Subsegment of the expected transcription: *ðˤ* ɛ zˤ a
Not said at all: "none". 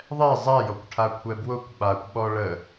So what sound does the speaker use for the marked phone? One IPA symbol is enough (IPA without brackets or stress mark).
ðˤ